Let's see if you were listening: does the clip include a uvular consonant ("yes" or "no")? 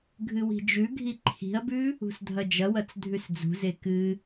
no